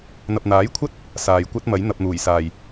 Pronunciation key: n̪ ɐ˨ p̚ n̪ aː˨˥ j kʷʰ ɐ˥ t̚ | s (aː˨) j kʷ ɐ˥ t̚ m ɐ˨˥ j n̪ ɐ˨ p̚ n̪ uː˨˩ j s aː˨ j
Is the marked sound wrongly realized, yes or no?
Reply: no